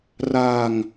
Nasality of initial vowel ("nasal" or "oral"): oral